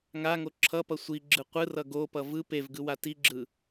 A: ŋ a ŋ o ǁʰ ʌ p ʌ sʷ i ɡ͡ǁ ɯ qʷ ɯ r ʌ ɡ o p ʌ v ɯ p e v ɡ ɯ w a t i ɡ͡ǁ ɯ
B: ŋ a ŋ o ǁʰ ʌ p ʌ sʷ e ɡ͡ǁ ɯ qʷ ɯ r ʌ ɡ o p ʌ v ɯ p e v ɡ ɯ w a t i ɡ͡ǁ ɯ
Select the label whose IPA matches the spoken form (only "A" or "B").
A